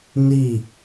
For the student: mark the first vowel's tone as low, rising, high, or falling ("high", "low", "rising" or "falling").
falling